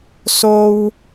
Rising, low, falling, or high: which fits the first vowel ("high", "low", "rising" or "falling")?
high